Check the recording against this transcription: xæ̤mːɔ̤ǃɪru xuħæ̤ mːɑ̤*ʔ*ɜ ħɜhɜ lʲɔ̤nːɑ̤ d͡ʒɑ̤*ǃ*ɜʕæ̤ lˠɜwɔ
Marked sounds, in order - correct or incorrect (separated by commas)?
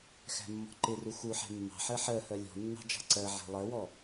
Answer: incorrect, incorrect